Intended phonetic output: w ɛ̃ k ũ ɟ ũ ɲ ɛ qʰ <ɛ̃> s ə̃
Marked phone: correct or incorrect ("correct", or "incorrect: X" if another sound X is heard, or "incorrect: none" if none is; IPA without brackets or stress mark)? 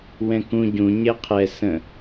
incorrect: ɛ